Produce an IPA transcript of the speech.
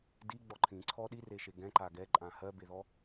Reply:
d i ɡ͡b ɔ ǃʰ ĩ ǀʰ ɔ ɗ i r e ʃ e ɡ ɛ̃ ǃ a ɡ ɛ ǃʼ ã h ɜ b e ð ɔ

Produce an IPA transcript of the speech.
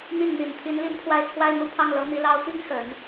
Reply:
n̪ i˥˩ n n̪ i˨˩ n t̪ʰ i˧˥ n l i˥˧ n pʰ w a˥˩ ɪ̯ t͡sʰ w a˥ ɪ̯ n̪ u˥˧ pʰ ɑ˥˩ ŋ l ɤ˧˥ n̪ i˧˥ l ɑ˥ ʊ̯ t̪ i˥ ŋ x ə˨˩˦ n

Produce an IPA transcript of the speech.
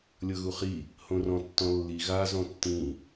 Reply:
lʲ ɤ ɣ u χ i | h õ r ɔ̃ tː ɔ̃ lː i ɣ a z ɔ̃ tː ĩ

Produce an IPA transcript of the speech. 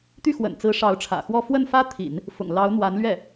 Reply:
t̪ y˥˩ x w ə̰˨˩ n t͡s ɹ̩˧˥ ʂ ɑ˧˥ ʊ̯ ʈ͡ʂʰ ä̰˨˩ x w ɔ˥˧ f w ə˥˩ n f ä˥ t̪ʰ ḭ˨˩˦ n | f ʊ̰˨˩ ŋ l ɑ˧˥ ʊ̯ n̪ w a˧˥ n l ɥ ɛ˥˩

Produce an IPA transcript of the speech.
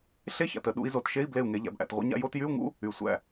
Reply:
ɬ e˧˥˧ ç a̰˨ t ə˨˩˦ ɗ ṵ˨˦ i̯ z o˨˦ t ʃ e˧˥˧ i̯ b l e˥˩ u̯ ŋ e˨˦ ʎ æ̰˨˦ b ʔ æ̰˨ t ʁʷ ə̰˧˥˧ ɲ a̰˥˩ j o˧˥˧ t j y˧˥˧ u̯ ŋ ṵ˧˥˧ | y˨ sʷ æ̰˥˩

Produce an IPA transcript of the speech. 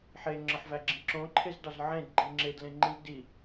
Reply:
ħ e ŋ͡ǁ ɒ ħ v æ ɡ͡ǁ ĩ ǁ õ ǃʰ e z d ɒ z ʕ ẽ d ɡ͡ǃ i ŋ͡ǁ e d l ẽ ŋ͡ǃ ĩ z d i

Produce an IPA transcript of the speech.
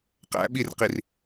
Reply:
q æ̰ ɓ i r q i r

